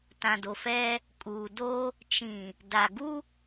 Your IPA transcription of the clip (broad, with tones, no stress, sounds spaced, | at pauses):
t ã˨ d o˨ f ɛ˦ | kʼ uː˨ d o˦ | t͡ʃ ĩ˨ | d a˨ ɡ u˦